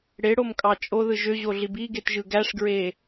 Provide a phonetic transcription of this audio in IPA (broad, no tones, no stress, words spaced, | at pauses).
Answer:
ɽeɽomkʼɑ t͡ʃʼoðɯ ʒøʑoɮib iɡetʒɯ ɡæʂɡɹe